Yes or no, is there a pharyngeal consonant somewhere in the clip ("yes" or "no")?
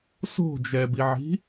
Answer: yes